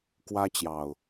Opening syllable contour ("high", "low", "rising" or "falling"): high